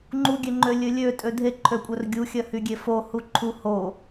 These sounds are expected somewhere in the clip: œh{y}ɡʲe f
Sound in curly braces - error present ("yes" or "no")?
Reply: no